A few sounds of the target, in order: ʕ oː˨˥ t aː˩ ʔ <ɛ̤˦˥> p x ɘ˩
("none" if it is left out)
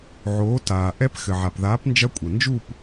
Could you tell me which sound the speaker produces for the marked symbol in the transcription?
ɛ˦˥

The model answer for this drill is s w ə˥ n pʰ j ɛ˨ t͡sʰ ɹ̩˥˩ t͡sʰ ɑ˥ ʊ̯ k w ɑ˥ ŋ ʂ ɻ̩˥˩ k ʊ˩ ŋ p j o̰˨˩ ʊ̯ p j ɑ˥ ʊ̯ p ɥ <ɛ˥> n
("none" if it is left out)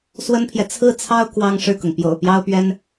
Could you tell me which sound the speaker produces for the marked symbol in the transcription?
ɛ˥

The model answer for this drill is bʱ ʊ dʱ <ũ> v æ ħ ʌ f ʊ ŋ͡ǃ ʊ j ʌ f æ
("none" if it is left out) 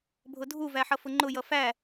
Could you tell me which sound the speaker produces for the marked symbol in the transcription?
u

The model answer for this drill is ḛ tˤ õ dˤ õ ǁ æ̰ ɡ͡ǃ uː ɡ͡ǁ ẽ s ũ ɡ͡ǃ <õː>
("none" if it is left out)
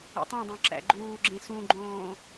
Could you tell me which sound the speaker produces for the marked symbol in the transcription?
õː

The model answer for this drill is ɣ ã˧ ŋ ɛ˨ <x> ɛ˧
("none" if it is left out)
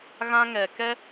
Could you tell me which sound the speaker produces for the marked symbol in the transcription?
k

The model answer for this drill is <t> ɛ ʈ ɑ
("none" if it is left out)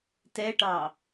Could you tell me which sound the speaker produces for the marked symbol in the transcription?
t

